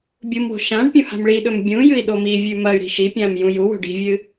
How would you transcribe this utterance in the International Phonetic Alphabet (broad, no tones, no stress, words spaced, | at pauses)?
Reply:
bʲumwo̤ ʃãɖpʲũ ha̤mɭiɗɵm bʲũ jɨi̯ɗomivʲʉ mɐy̯ɾi̤ ʃipʲãm jũjuwo̤ ɖi̤vʲɨ